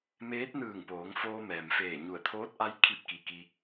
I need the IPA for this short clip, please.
m eː˧˥ t̚ n ɯː˧˩ ŋ p oː˩˧ ŋ f oː˧ m ɛː˩ m f eː˧˩ ɲ u˧˩ ə̯ t̪ʰ oː˧˥ t̚ ʔ a˧˥ j kʰ i˥˨ p̚ k i˧˩ k i˧

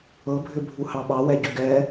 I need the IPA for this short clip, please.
ɤ bʱ ʏ bʱ u h ɑ ɓ ɑ w ɛ ɟ ʏ ɡ ɛ

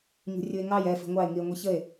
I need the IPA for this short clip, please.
ɲ ṳ rʲ u e̯ ŋ ɑ j ɛ f i̤ ŋʷ ɑ e̯ ŋ i e̯ ŋʷ i ç ə e̯

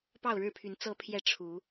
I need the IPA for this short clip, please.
p ɑ˥˨ ʊ̯ ɻ ɻ̩˥˨ pʰ y˨˦ n t͡s ɤ˨˦ pʰ j ɛ˨˦ ʈ͡ʂʰ u˨˦

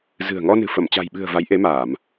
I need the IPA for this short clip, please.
z ɨ̤˨˩ ə̯ ŋ ɔ˧ n ɨ̤˨˩ f ə˧˩ m t͡ɕ a̤˨˩ j ɓ ɨ̤˨˩ ə̯ v a˨˦ j ʔ e˨˦ m aː˧˩˨ m

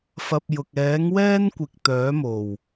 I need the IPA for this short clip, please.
f ɐ˧ p̚ j ʊ˨ k̚ ɛː˨˥ ŋ w ɛː˥ n kʷ ɪ˨ k̚ t̪ œː˨˥ m o˨˩ w

